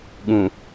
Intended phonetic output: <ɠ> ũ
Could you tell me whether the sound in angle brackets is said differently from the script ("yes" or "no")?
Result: no